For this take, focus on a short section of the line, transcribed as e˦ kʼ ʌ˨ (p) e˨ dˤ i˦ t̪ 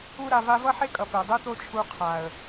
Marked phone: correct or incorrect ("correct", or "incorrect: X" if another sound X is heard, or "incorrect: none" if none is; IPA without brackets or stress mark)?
correct